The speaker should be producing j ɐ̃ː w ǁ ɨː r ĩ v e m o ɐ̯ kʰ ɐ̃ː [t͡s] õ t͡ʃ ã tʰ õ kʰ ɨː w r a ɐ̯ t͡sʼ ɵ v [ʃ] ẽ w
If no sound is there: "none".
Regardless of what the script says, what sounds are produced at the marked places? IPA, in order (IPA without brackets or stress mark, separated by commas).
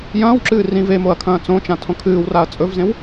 t͡s, z